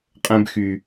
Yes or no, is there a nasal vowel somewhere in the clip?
yes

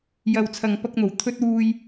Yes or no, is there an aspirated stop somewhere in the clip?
yes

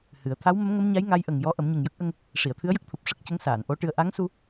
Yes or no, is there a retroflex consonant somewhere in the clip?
yes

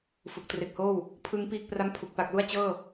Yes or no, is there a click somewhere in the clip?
no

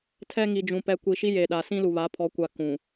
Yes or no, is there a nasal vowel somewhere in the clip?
yes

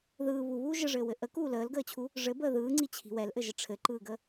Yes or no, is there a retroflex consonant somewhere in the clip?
yes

